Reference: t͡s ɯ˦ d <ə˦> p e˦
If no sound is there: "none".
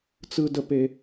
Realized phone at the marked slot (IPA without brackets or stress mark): ə˦